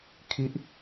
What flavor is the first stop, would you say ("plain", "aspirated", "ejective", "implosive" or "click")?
aspirated